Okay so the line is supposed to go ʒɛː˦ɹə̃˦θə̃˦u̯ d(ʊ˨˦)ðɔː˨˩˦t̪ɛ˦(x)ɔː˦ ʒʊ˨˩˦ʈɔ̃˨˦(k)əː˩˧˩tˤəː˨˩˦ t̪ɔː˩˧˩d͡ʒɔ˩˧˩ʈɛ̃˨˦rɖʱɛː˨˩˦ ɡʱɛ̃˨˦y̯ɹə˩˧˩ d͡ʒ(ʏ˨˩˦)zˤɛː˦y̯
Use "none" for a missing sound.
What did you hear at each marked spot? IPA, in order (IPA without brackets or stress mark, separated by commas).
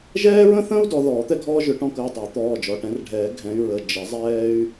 ɔ˨˦, ɡʱ, k, ə˨˩˦